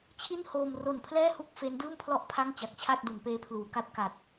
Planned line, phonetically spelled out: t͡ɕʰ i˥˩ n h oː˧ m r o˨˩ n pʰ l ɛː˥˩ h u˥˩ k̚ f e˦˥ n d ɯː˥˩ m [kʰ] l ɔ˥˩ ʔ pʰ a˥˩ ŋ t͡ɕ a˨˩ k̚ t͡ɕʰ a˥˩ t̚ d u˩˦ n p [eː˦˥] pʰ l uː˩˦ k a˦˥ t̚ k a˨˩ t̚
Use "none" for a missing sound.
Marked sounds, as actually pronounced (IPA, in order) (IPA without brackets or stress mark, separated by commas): pʰ, eː˦˥